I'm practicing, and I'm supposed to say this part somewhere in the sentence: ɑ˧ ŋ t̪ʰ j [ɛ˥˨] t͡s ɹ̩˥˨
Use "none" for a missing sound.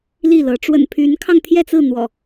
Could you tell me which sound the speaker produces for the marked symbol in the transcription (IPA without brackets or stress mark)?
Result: ɛ˥˨